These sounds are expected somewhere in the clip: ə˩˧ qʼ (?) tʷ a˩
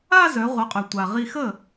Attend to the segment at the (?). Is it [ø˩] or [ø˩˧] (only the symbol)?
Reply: ø˩